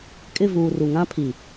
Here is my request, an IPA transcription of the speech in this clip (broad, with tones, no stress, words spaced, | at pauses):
kʼɪ˦˨vuː˨ ru˨ŋã˦pʰi˨